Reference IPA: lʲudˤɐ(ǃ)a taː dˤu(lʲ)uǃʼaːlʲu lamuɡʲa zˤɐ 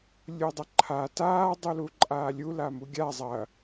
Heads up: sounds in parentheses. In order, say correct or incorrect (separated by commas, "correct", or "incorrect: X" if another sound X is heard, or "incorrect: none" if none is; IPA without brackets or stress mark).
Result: incorrect: ǃʰ, incorrect: l